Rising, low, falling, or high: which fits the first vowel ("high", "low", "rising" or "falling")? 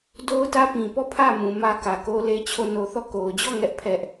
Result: high